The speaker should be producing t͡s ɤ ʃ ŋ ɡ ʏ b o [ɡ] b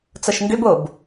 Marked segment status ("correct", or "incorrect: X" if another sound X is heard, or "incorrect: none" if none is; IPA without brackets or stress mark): incorrect: none